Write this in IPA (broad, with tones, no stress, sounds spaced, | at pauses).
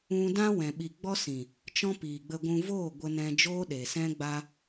ũ˧ d ã˦ w ɛ̃˨ ɓ i˨ ɡ͡b ɔ˦ s ĩ˨ | t͡ʃ ɔ̃˦ p iː˨ ɡ͡b ə˧ ɡʷ ũ˧ v oː˦˨ ɡʷ ə˧ n ɛ̃˧ d͡ʒ oː˦ ɗ e˨ s ɛ̃˦ ɡ͡b a˦